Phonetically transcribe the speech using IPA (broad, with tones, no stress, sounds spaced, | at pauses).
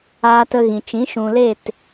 aː˧ t ə˧ ɣ ĩ˨ t͡ʃ ĩ˨˦ ʃ ũ˨ l e˦˨ t